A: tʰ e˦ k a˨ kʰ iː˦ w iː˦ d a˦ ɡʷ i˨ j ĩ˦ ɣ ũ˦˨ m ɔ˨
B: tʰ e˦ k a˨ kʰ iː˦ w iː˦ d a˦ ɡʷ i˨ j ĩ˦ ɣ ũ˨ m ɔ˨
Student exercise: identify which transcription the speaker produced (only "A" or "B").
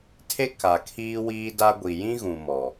B